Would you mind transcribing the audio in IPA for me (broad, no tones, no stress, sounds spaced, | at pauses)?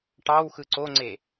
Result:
ʈ ɑ w x ɯ ǀ o ŋ͡ǀ e